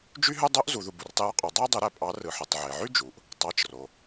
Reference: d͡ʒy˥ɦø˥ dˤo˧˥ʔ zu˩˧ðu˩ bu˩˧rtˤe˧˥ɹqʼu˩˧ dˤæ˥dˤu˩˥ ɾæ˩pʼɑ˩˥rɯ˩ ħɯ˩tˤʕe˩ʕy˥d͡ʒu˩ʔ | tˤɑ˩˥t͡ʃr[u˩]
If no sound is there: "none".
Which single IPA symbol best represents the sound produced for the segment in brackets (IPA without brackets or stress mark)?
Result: o˩